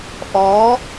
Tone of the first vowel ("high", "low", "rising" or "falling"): rising